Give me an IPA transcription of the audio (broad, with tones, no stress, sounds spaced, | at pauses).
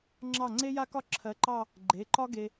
ŋ͡ǁ ɑ˥˩ ŋ͡ǀ e˥ j a˥ k ɒ˥ ǁʰ ɜ˨˥ ǃ ɑ˥˧ | ɡ͡ǃ e˩˧˩ ǃ ɒ˥ ɡ e˧